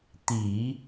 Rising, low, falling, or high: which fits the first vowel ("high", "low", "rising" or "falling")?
low